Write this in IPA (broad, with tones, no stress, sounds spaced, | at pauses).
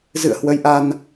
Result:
z ɨ̰˧˨ ə̯ h w ə˨˦ j ʔ a˧ n